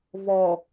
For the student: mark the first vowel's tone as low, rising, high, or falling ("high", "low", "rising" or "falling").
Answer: low